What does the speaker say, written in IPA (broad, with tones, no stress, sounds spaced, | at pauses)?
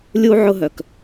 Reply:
lʲ u˧ ʕ ʊ˦ ɦ œ˨ k